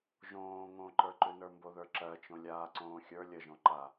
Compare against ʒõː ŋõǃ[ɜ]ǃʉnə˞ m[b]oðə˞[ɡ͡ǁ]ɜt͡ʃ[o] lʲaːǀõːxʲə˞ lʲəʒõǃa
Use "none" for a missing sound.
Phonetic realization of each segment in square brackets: ə˞, b, ǁ, õ

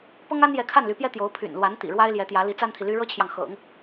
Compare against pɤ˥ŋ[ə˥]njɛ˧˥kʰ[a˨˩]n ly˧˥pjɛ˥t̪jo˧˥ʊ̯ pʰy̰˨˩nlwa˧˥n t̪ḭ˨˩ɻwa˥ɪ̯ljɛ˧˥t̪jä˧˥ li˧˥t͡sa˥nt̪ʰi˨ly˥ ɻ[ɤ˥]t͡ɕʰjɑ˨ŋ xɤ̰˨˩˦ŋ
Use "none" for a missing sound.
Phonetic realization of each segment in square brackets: a˥, a˥˩, ɤ˥

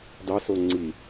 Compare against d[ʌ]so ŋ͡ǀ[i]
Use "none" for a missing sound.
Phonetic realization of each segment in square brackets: ɑ, i

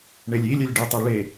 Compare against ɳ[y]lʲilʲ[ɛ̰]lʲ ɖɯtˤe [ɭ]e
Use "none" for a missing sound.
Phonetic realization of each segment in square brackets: e, ɛ, ɭ

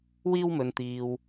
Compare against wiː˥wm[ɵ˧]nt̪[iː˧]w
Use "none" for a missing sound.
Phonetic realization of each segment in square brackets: ɵ˧, iː˧

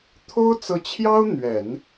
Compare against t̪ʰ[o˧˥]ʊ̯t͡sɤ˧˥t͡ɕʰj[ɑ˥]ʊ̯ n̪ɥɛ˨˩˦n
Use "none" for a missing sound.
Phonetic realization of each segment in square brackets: o˥, ɑ˥

